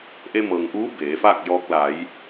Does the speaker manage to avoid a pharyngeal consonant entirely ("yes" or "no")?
yes